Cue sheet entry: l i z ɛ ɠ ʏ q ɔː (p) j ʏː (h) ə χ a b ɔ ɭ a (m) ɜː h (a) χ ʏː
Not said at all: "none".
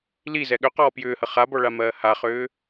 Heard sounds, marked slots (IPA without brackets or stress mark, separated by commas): p, h, m, a